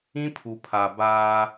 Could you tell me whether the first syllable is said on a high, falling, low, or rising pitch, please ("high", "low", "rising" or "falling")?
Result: high